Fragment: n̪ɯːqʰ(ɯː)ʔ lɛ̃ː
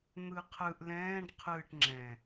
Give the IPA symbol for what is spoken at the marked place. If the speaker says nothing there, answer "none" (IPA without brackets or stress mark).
ɯ